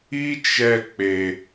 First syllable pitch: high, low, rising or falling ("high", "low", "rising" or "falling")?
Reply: high